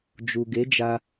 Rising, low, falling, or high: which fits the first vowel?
low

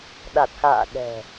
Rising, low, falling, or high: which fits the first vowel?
low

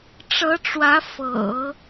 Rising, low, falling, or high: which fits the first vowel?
rising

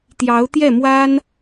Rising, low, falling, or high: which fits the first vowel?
rising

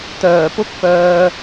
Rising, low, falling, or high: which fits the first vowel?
low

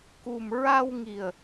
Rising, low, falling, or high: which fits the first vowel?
low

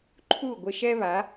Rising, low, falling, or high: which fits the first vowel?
falling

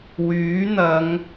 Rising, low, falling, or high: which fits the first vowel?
rising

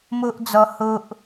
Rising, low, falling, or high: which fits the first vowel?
high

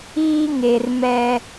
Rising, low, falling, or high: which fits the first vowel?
high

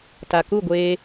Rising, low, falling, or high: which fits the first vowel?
low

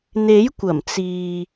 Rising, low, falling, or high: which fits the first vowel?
rising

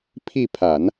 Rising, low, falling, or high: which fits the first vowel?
falling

